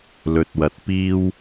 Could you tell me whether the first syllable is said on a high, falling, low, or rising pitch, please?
low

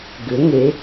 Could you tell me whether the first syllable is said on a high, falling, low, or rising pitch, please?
rising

